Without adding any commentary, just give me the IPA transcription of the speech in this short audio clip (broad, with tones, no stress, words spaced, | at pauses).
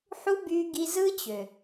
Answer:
ħu˦ by˧ ɡi˧zɯ˦t͡ɕø˨